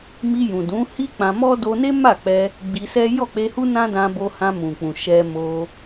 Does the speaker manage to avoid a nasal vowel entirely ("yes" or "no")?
no